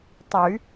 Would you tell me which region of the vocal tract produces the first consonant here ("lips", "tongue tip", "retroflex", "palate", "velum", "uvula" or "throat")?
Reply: tongue tip